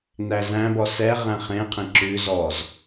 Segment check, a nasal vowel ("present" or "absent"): present